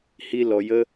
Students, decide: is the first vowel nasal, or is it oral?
oral